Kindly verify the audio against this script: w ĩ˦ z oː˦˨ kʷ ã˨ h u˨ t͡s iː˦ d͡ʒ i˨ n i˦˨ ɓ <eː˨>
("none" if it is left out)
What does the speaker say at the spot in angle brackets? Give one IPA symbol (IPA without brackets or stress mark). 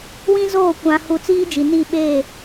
eː˦˨